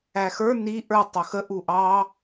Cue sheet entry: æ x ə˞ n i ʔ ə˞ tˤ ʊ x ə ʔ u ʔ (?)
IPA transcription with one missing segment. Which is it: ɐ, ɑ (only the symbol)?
ɑ